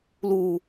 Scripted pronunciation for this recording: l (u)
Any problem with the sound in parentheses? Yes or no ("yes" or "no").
no